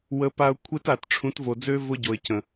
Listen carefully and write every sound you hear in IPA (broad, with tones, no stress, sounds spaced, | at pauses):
w ə˨˦ p a˧ ʊ̯ kʷʰ e˦ t a˨ t ʈ͡ʂʰ ũ˨˦ t v o˨ d͡z ø˦ v ʊ˦ ɟ o˨ ɪ̯ c ə̃˨